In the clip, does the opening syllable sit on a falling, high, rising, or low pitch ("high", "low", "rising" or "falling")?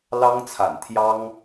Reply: high